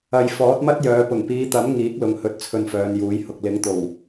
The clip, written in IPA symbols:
ɐ˨ j f ɔː˨˥ t̚ m ɐ˥ t̚ j œː˨˧ p ʊ˨˩ ŋ p iː˨˧ t̪ ɐ˨˥ m ŋ iː˨˥ k̚ l ʊ˨ ŋ h ɵ˨˥ t̚ t͡sʰ ɵ˧ n f œː˨˧ n j uː˨˥ j h ʊ˨ k̚ l ɪ˨˥ ŋ t̪ o˨˩ w

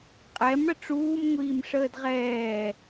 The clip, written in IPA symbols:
qʼ ɛ m ɽ ə ʈ͡ʂ uː m ŋʷ iː m ʂ əː d ʁ ɛː

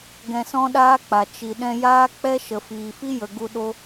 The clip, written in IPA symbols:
ɡ ɛ̃˧ s ɔ̃˦ ɗ aː˦ k͡p a˨ t͡ʃ i˨ ɗ ɛ̃˧ j aː˦ k͡p ɛ˦ ʃ ə˨ f iː˨ f i˦ j ə˨ ɡ u˧ ɗ o˦

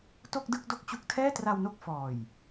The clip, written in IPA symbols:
t o˥˩ k̚ d ɯ˥˩ k̚ d o˥˩ k̚ t͡ɕ u˥˩ k̚ tʰ ɛː˥˩ t r a˧ w n o˦˥ k̚ f ɔː˨˩ j

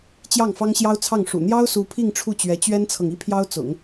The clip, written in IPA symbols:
t͡ɕ j ɑ˥˩ ŋ f ɑ˥ ŋ ɕ j ɑ˥ ʊ̯ t͡sʰ ɑ˥˩ ŋ ʂ ṵ˨˩ n̪ j ɑ˥ ʊ̯ s u˧˥ pʰ i˥˧ ŋ ʈ͡ʂʰ u˥˩ t͡ɕ ɥ ɛ˧˥ t͡ɕ ɥ ɛ˥ n t͡sʰ ɤ˨ ŋ i˥ pʰ j ɑ˥ ʊ̯ t͡s ʊ̰˨˩˦ ŋ

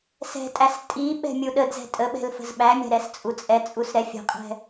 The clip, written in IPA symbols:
s ɛ̤ tʼ æ s tʼ i ɓ ɛ̤ mʲ u ɗ ə d z ɛ̤ tʼ ə ɓ ɛ̤ l f ə̤ z ɓ æ mʲ æ̤ ɾ ɛ s t͡sʼ u t͡sʼ ɛ t͡sʼ u s ɾ ɛ fʲ ə̤ qʼ ɛ̤

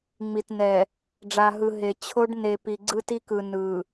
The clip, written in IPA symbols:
ŋ͡m i˨ t n ɛ˨ | ɖ͡ʐ a˨ ɦ ɯ˨ ɦ e˨ t͡ɕʰ o˦ ɖ n e˨ p i˨ ɡ͡ǀ ɯ˦ t i˦ k ɯ˨ n ɯ˨

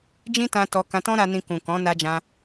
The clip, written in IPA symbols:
d͡ʒ ĩ˦ t ã˧ t ɔ˧ k ã˧ t ɔ̃˦ ɾ a˧ n ĩ˧ k ũ˨ k ɔ̃˨˦ n a˧ d͡ʒ ã˧

